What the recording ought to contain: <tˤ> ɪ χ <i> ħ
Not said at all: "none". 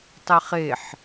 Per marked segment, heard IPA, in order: tˤ, e

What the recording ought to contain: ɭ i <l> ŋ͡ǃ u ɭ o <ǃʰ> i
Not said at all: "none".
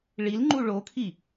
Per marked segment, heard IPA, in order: l, kʰ

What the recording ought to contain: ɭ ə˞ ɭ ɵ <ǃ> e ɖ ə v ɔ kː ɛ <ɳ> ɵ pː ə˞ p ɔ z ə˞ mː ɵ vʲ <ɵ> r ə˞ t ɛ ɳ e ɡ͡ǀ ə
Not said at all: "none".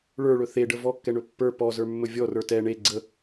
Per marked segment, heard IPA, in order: θ, ɳ, ɔ

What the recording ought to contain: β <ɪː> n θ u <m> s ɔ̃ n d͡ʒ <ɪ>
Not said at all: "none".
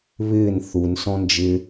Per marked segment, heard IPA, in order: ɪː, n, ɪ

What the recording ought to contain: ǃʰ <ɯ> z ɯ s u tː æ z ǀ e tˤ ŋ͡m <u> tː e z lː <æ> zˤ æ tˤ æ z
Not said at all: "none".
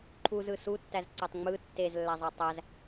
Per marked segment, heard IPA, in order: u, ɯ, æ

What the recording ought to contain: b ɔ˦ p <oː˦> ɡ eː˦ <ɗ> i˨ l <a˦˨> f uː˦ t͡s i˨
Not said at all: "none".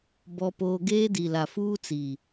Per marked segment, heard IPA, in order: oː˦, d, a˨

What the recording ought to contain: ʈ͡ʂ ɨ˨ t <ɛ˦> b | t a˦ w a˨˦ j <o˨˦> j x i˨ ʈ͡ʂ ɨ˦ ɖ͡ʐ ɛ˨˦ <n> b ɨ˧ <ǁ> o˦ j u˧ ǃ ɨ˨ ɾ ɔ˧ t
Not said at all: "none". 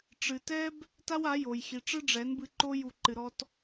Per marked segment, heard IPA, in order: ɛ˦, o˨, n, ǃ

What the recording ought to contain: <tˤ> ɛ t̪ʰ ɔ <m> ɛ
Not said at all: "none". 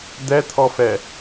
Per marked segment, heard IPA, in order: d̪, f

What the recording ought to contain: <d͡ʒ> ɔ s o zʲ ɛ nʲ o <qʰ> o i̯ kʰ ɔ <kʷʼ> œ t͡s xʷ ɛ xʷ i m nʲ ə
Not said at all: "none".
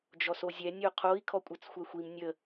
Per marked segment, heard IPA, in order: d͡ʒ, qʰ, kʷʼ

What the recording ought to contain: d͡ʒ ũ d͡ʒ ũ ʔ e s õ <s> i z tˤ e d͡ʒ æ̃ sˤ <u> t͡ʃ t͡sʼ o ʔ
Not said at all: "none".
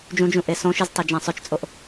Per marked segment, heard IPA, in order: ʃ, ø

